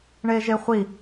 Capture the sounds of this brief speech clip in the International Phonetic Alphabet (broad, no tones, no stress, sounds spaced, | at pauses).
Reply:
ɳ e ʒ e χʷ i